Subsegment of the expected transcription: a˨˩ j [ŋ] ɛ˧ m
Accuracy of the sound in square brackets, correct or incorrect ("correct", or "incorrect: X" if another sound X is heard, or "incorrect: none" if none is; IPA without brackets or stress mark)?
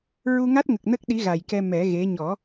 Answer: incorrect: k